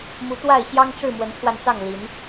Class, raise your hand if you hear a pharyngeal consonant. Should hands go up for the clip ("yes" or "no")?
no